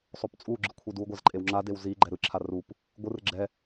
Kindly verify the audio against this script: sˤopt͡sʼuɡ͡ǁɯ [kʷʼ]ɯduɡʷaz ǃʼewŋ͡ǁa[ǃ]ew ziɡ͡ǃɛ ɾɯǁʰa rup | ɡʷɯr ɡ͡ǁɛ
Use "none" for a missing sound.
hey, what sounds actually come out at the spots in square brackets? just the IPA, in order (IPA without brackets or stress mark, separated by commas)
kʷʰ, d